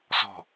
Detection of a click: absent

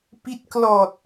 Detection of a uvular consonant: absent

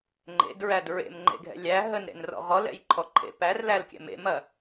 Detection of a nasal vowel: absent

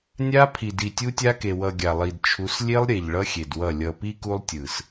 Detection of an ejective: absent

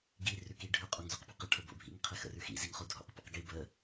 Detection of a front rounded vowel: absent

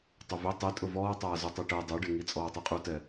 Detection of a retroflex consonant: present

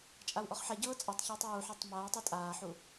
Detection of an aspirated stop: absent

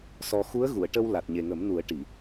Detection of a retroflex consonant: present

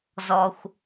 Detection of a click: absent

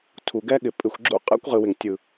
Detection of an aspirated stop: present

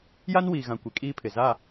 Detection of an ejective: present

